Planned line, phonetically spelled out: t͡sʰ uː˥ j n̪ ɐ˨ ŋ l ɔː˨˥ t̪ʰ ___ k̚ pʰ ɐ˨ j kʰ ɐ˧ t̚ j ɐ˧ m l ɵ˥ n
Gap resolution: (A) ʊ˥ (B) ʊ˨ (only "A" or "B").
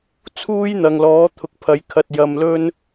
B